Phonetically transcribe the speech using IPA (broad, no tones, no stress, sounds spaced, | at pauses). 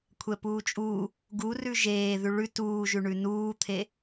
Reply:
kʷʰ ɛ p uː t͡ʃʼ u | ɡ u r ʉ ʒ eː ð ʉ ɭ ʉ t uː ʒ ʉ ɳ ʉ n uː t̪ʰ e